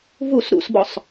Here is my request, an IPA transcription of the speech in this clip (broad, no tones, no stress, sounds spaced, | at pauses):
v u s ɾ ṵ s b ɔ sˤ